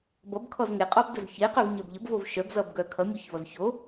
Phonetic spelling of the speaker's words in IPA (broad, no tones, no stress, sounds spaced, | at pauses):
b ʌ b kʰ ɔ z ŋ e qʼ ɔ b d ə z ç e q œ v ɲ œ b ʎ ə b v o v ʃ œ b z ʌ b ɡ œ kʰ ʌ mʲ o ç v ʌ z ç o